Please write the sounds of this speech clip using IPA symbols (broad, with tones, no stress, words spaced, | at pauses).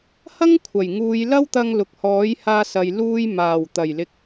hɐ˥ŋkʷʰɐ˨˩j ŋuː˨˧jlɐ˥wt̪ɐ˧ŋ lʊ˨k̚hɔː˨˥jhaː˧sɐ˨j luː˧jmaː˨˩wt̪ɐ˨˩j lɪ˨k̚